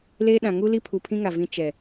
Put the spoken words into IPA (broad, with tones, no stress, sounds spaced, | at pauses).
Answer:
l eː˦ ɗ ã˨ ŋ u˦ l i˦ pʰ u˨ pʰ ĩ˦ ŋ a˨ v ĩ˦ t͡ʃ ɛ˨